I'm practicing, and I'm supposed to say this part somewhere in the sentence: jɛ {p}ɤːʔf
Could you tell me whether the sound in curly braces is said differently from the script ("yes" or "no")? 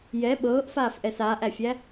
yes